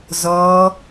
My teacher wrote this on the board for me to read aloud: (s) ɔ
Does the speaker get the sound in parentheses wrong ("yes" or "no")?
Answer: yes